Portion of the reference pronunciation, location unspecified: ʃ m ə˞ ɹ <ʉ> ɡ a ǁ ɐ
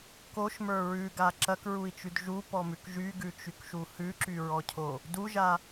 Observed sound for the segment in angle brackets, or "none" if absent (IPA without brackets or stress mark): ʉ